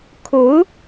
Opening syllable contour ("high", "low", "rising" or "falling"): rising